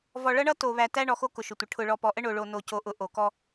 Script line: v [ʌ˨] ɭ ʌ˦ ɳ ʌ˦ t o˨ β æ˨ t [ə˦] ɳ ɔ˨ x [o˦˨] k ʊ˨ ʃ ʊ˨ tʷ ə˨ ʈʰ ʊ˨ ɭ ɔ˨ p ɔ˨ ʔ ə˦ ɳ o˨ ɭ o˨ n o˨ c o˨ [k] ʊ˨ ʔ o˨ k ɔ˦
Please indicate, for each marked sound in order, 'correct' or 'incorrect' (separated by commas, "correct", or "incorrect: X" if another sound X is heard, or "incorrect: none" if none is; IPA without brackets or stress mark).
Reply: incorrect: ɔ˨, incorrect: æ˦, incorrect: o˦, incorrect: ʔ